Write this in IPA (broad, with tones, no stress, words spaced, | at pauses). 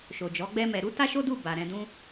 ʃo˨d͡ʒɔ˨˦ɡ͡bɛ˦mɛ˧ ɾu˦ta˦ʃo˦du˦˨ ba˨ɾɛ̃˧dũ˦